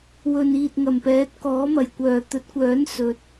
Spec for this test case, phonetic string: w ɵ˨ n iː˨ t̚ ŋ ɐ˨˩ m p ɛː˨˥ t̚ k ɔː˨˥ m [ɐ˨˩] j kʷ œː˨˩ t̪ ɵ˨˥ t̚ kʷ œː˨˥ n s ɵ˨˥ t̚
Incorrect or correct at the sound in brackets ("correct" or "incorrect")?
correct